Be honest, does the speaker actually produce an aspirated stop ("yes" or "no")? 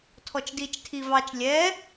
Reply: yes